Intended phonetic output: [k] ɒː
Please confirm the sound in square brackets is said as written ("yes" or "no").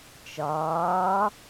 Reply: no